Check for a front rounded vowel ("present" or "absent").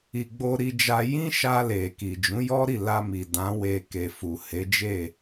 absent